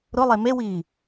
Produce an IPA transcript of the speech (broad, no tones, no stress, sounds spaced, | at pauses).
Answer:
ɾ ʊ lˠ e m e w iː